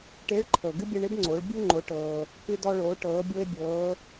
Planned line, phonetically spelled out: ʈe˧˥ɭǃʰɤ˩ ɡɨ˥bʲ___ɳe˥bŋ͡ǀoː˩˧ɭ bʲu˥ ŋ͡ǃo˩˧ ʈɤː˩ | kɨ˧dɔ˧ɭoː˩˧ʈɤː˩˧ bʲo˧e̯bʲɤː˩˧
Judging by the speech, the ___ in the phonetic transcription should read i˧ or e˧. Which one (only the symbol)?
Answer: e˧